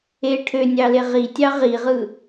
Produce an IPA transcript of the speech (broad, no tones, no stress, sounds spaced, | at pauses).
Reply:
e ʈʰ ø nʲ ɑ l e ʁ i tʲ ɑ ʁ i ʁ ɯ